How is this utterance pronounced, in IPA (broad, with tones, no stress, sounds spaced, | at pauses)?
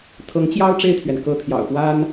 t̪ʰ ɤ˧˥ ŋ t͡ɕ j ɑ˥ ʊ̯ ʈ͡ʂ e˥˩ ɪ̯ t̪ʰ ɥ ɛ˩ n k ɤ˧˥ t̪ʰ j ɑ̰˨˩ ʊ̯ p w a˥ n